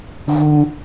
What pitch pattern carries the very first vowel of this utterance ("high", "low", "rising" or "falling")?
high